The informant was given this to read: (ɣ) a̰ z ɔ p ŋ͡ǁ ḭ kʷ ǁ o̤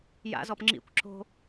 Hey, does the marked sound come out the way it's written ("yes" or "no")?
no